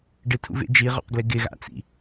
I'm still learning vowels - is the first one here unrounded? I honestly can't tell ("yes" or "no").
yes